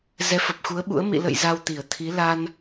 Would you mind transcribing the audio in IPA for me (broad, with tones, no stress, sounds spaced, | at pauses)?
z ɛ˨˦ f ə˨˩ p̚ x u˨˦ ə̯ ɓ ṵ˧˥ ə̯ m ḭ˧˨ l ə̰˧˨ j z a˧ w t̪ i˧˩ ə̯ t̪ʰ i˨˦ l a˧ n